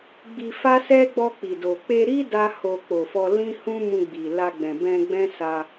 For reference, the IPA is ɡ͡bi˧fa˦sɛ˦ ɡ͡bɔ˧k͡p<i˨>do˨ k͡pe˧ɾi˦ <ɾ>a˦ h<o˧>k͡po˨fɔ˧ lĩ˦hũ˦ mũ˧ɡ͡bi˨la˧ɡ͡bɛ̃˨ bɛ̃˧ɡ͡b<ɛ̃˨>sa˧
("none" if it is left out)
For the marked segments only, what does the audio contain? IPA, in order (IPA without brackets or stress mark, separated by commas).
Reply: i˨, d, o˧, ɛ̃˦